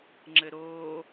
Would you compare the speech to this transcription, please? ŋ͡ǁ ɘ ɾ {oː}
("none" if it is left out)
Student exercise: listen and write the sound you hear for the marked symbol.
oː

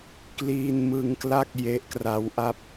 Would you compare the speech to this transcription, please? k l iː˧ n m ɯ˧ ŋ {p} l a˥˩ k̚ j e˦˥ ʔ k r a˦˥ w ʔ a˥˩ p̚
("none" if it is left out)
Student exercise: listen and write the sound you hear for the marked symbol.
k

